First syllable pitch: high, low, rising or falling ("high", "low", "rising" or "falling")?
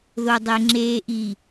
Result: low